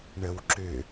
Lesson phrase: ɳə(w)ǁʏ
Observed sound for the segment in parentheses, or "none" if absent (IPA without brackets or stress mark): w